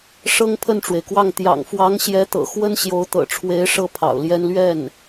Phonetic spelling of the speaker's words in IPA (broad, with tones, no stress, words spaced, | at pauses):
ʂɤ˥ŋpʰə˥˩nʈ͡ʂwe˩ɪ̯kwɑ˥˩ŋ t̪jɑ̰˨˩ŋfwɑ˧˥ŋɕjɛ˧˥t̪ɤ̰˨˩ xwə˥nɕjo˧˥ʊ̯t̪ɤ̰˨˩ʈ͡ʂʰwe˧˥ɪ̯ ʂɤ˥pʰɑ̰˨˩ʊ̯ljɛ˥n lɥɛ˥˩n